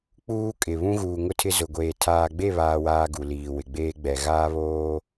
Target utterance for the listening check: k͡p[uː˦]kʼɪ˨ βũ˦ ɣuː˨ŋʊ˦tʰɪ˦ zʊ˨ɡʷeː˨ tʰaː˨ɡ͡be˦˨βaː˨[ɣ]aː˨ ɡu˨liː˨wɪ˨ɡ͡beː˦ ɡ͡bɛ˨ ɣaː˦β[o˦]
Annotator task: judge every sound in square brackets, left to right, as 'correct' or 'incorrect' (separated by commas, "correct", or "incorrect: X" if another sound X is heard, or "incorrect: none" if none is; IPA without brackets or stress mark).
correct, incorrect: w, incorrect: oː˦